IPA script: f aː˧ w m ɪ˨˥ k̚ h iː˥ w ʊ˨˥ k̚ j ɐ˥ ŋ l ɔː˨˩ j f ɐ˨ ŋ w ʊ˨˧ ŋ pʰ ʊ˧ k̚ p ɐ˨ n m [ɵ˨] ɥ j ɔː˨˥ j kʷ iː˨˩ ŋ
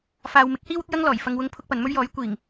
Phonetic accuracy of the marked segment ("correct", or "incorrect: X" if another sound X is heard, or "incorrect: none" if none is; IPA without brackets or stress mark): incorrect: ɵ˥